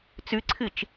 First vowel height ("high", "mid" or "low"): high